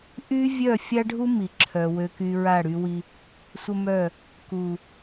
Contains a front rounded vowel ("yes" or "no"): yes